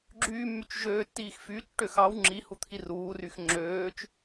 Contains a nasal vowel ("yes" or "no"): no